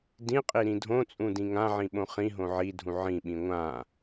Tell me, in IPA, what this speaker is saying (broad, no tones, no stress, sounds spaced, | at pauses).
d ĩ qʼ i ɾ ĩ dʱ õ t͡sʼ ũ d ĩ ŋ ã ʕ ĩ ɓ õ χ ĩ ɦ õ ʕ i dʱ ũ ʕ ĩ ɓ ĩ ŋʷ ã